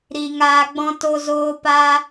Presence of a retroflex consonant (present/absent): absent